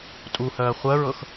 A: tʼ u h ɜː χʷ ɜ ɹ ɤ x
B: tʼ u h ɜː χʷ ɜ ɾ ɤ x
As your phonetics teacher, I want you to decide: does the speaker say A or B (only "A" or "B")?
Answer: A